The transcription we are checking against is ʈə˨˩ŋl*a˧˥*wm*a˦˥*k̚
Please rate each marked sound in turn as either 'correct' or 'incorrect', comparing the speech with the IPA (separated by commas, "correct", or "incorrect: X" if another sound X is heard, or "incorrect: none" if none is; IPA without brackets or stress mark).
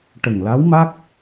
correct, correct